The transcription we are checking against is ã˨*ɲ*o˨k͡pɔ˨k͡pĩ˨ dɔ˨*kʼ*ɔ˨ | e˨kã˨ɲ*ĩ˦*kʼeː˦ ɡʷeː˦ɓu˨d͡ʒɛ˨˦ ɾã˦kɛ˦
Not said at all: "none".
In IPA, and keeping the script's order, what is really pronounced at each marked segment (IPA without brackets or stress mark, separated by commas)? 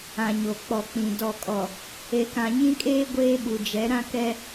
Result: ɲ, kʼ, ĩ˦